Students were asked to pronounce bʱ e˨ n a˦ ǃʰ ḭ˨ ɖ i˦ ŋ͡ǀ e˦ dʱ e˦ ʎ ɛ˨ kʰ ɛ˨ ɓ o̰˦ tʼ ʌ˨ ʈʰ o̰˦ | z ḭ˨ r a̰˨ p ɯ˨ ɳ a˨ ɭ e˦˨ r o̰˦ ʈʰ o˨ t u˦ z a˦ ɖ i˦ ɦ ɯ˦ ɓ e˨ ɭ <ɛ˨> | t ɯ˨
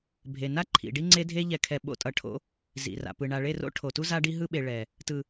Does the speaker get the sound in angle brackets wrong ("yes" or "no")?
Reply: no